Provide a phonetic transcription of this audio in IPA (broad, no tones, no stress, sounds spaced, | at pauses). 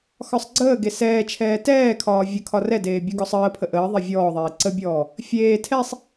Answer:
x ɒ sˤ ɡ͡ǀ əː ɡ e s ɛː t͡ʃʰ ɛː t ɛː kʰ ɒː vʲ ə kʰ ɒ r ɛ d eː bʲ ɔ ɡ ɔ sˤ əː pʰ ə ʔ əː ðˤ e vʲ ɔː ðˤ eː ǀ ə bʲ ɔː | fʲ eː tʰ ɛ sˤ